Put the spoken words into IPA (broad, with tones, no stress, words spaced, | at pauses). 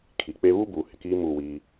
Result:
kʰi˨k͡pe˦ βu˦buː˨ hɪ˨kiː˦ muː˦˨wiː˦